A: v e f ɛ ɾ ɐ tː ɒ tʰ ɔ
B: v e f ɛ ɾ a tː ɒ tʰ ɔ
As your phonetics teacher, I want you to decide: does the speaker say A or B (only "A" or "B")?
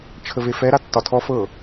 B